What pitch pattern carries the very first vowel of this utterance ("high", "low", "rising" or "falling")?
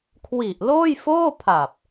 low